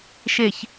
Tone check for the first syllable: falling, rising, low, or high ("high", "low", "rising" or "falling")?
low